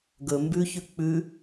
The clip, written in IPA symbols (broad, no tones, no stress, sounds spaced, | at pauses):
ɡ ɵ m b ʉ ç ʉ k͡p ʉ